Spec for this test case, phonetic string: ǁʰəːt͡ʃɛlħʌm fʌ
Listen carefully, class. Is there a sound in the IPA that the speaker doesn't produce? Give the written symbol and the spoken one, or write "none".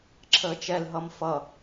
ħ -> ɦ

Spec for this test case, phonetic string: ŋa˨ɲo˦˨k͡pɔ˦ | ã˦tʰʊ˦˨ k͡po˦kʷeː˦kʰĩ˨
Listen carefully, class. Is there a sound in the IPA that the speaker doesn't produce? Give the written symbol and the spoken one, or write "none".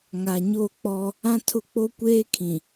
none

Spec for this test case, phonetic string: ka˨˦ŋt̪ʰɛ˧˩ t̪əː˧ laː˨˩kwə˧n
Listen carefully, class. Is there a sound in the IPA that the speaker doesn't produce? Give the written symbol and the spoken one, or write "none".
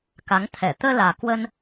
none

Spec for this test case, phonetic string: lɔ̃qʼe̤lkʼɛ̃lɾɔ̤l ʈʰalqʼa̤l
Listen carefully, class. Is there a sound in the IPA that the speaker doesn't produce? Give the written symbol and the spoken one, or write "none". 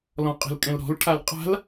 none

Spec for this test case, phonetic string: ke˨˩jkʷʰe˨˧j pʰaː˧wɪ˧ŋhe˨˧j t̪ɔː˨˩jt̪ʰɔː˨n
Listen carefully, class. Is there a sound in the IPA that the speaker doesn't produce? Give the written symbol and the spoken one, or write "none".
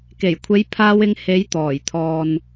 none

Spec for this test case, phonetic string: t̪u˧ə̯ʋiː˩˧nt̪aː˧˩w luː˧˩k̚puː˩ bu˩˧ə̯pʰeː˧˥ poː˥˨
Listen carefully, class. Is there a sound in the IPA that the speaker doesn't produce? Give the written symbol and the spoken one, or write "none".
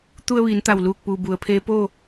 aː˧˩ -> a˧˩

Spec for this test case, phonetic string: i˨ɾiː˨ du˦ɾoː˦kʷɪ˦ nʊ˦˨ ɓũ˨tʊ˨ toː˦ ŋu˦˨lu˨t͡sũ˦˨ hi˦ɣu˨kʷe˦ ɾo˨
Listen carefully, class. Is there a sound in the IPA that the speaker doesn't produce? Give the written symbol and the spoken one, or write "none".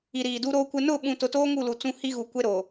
none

